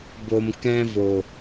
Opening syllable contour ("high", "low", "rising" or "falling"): low